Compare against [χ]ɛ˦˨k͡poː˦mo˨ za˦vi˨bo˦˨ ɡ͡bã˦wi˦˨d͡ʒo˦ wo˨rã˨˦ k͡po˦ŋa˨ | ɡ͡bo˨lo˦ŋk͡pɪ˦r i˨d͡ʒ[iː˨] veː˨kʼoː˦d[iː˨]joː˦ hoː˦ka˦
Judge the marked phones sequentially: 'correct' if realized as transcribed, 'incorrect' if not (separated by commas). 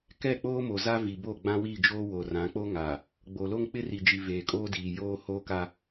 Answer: incorrect, incorrect, correct